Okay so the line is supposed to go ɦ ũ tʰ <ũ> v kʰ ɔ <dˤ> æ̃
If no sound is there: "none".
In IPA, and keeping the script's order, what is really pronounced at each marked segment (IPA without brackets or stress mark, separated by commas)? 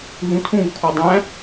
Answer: ũ, dˤ